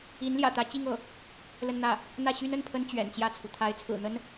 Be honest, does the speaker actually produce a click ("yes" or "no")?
no